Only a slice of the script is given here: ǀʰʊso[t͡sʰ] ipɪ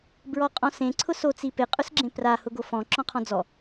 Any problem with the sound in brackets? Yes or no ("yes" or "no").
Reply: yes